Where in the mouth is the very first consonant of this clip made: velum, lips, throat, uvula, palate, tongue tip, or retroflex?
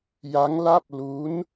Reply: palate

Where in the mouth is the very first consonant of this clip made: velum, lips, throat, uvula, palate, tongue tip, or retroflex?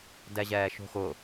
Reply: tongue tip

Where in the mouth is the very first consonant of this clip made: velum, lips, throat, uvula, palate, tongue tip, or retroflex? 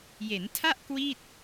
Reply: palate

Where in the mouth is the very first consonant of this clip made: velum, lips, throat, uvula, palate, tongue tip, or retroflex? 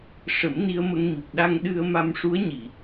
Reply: retroflex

